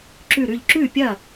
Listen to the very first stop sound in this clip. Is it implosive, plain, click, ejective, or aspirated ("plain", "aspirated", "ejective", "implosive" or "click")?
click